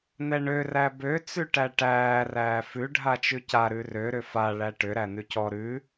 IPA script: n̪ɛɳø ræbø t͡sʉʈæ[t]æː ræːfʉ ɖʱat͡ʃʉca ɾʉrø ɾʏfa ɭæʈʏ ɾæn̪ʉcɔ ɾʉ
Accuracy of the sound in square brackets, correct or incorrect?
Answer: incorrect: ʈ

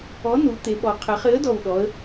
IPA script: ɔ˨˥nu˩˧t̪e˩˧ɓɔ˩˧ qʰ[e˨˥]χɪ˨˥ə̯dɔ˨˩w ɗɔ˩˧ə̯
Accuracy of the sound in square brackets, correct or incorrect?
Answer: incorrect: e˩˧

